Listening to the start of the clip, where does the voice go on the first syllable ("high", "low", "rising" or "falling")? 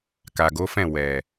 low